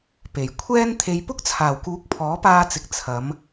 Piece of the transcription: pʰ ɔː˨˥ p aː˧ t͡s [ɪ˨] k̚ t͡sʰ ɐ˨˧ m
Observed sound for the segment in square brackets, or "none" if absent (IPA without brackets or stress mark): ɪ˨